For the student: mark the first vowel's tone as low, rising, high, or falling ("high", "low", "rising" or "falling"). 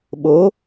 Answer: rising